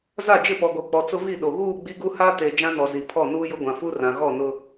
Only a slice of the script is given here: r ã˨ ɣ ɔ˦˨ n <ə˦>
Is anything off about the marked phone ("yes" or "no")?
yes